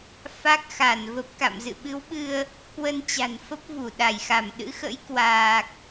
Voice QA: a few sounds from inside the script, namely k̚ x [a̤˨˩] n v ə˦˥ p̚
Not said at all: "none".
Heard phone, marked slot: a˧˩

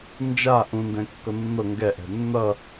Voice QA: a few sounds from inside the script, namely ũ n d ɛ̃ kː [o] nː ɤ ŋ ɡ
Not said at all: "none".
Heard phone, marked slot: ɤ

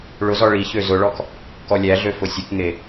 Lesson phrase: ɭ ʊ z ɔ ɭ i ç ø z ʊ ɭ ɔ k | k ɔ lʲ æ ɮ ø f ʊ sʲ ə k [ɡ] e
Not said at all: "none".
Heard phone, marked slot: ŋ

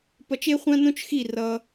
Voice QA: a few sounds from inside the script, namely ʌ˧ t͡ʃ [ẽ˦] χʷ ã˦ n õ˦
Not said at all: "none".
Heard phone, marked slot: e˦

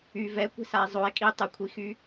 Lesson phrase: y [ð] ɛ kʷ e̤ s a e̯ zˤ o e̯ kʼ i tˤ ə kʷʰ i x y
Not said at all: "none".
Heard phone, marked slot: v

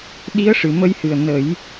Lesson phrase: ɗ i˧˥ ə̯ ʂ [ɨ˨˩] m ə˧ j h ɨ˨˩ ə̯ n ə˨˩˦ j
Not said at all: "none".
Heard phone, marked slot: ɨ˨˩˨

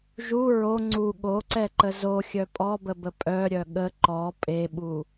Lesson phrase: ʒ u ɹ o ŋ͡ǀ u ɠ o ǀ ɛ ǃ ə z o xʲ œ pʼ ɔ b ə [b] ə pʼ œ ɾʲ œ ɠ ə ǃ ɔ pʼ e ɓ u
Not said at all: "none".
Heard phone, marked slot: b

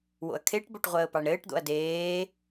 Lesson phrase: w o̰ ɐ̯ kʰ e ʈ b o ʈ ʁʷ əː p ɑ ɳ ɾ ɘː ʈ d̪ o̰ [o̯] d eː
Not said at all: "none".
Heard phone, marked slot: ɐ̯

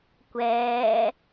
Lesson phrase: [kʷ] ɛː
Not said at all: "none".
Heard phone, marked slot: kʷ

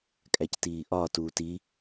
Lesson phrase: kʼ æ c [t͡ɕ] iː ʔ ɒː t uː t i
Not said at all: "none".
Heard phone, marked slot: t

